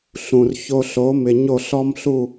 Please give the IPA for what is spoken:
ɬũ˨r ço˧ɬo˨˦mɪ˨ ɲo˦˨ɬɔ˦mɬu˦˨

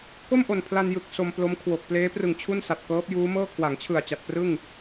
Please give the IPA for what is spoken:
ko˥˩mʔo˨˩n pʰla˧njɯ˨˩k̚ so˧mplo˦˥mkʰwo˨˩k̚ pleː˦˥prɯ˨˩ŋ t͡ɕʰu˥˩nsa˨˩t̚kɤː˦˥p̚ juː˦˥mɤː˥˩ kʰwa˩˦ŋt͡ɕʰɯ˨˩a̯ t͡ɕa˨˩t̚prɯ˥˩ŋ

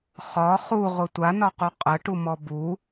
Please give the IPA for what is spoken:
χɒ χuʁʷə tʷanɒqu qʼəʈumɔ bu

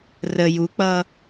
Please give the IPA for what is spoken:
rə juk͡pʌ

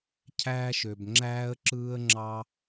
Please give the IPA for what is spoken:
cʰæː˦ʃø˧b ŋ͡ǁæː˦ə̯ǁɯː˦ə̯ŋ͡ǁɑ˦

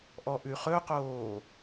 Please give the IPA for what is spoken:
ʔɔʔʉχɵqoː

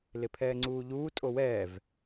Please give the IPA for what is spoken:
lɪpʰɛːŋ͡ǀuːʎuː tʼowɛːv

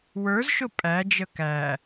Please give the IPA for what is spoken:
wə˞zʃʊ pʼæd͡ʒə kæ

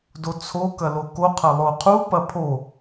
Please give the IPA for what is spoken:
dot͡sʰo kɐloko qʰɐlˠoqʰu pɐpʰo

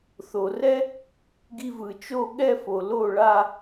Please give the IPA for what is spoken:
θo˩rɛ˥ | ɡi˧vɯ˩t͡ʃo˥˧ ɠɛ˥˧fo˩ lo˥˩ɭa˥˧

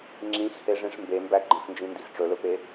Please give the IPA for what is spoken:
ŋ͡ǁĩxheʐĩʂ mbembæ ɡ͡ǃə̃xnd͡ʒĩndix ʈ͡ʂɵlɵpe

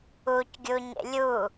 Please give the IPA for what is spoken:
ucɡʲuɲḛ lʲu

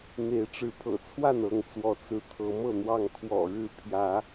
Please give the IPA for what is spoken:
n̪e˨˦ɪ̯ʈ͡ʂɻ̩˨˦pʰɤ̰˨˩t͡sʰwa˥˨n ɤ˥˨ŋt͡swɔ˨˦ t͡sɹ̩˨˦ t̪ʰɤ˨˦mɤ˥˨n̪wɑ˥˨ŋ kʰwɔ̰˨˩ ɻɻ̩˥˨ pʰjä˨˦

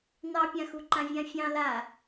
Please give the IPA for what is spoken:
nɑpʲãxu ǃãvʲãfʲɑ̃ la

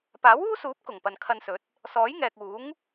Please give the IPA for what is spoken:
paː˨˥wuː˥suː˨˥p̚ kʊ˨˩ŋpɐ˨nkʰɐ˧nsɵ˨˥t̚ | sɔː˨˥jŋɛː˨k̚ uː˨˥ŋ

